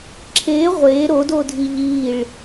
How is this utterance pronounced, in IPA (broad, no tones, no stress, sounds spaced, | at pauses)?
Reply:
ǁʰ e ʁʷ e ɾ o d o dʱ i ʎ i ɭ